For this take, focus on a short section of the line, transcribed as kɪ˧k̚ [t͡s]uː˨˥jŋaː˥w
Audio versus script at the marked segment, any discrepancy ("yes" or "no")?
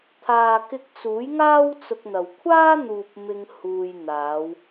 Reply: no